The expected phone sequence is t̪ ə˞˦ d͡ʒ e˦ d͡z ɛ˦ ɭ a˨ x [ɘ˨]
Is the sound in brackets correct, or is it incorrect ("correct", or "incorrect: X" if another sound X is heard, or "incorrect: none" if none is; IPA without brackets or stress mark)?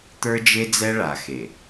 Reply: incorrect: e˨